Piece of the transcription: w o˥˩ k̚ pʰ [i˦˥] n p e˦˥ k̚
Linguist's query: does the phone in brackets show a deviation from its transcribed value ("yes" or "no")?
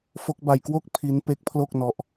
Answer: no